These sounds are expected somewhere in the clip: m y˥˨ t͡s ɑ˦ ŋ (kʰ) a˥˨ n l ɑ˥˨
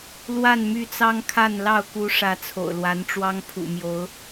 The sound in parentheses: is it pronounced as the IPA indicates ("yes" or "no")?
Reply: yes